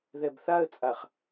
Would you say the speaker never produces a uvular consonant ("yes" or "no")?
no